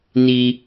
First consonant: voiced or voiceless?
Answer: voiced